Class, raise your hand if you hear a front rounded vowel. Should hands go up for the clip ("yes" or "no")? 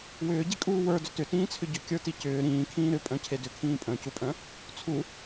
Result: yes